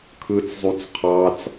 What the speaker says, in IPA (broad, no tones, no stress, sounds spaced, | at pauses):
kʰ ɯ t͡s zˤ u t͡s qʰ ɑ t͡s